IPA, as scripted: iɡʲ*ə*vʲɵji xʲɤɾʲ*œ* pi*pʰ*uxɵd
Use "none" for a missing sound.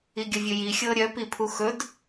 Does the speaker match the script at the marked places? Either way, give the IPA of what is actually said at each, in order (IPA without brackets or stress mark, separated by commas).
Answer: ə, œ, pʰ